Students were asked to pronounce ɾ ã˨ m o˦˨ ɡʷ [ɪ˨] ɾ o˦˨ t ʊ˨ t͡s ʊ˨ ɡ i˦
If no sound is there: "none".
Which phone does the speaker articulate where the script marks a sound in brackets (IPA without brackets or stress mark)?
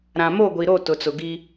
i˨